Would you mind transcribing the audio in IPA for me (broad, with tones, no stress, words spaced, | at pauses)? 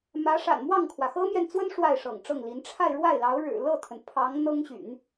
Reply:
mä˧˥ ʂa̰˨˩nmwɑ˥˩ŋkʰwä˩ xɤ˥mjɛ˨nt͡swə˥n ʂwa˥˩ɪ̯ʂɤ̰˨˩ŋʈ͡ʂɤ˥˩ŋli˧˥n ʈ͡ʂʰa˥˧ɪ̯ɻwa˥˩ɪ̯ lɑ˧˥ʊ̯ ɻɻ̩˨˩ lɤ˥˩t̪ʰə˩n pʰɑ˧˥ŋ n̪ɤ˥ŋɕy̰˨˩˦n